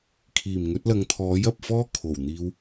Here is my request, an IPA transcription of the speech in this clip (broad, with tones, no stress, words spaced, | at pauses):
kʰiː˨˩m ŋɵ˨˥t̚lɐ˨˧ŋt̪ʰɔː˨˥j ɐ˨p̚ fɔː˥kʰo˨˩wn̪iː˧w